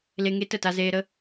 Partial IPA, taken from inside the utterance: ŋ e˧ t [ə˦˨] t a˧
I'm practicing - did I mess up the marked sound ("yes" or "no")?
no